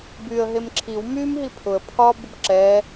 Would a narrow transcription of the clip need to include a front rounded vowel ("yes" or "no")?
yes